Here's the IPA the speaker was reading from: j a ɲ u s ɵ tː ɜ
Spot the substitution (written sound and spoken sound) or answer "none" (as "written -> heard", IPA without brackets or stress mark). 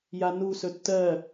ɲ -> n